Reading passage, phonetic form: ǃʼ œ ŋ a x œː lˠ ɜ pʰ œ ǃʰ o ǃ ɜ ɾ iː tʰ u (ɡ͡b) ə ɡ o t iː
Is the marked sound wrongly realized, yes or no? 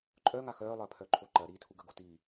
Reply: yes